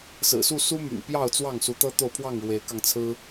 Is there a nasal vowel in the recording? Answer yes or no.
no